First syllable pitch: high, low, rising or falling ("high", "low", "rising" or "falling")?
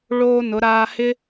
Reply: high